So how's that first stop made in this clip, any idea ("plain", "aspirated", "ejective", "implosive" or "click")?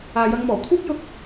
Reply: aspirated